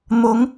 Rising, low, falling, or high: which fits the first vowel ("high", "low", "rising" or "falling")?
rising